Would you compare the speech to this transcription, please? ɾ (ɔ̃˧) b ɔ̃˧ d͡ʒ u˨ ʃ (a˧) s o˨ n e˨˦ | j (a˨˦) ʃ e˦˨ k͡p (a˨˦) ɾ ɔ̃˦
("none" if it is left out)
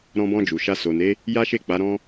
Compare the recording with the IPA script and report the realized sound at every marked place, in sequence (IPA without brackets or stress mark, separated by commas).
ɔ̃˧, a˧, a˦, a˨˦